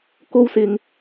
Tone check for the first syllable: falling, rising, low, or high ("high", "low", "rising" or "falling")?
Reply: high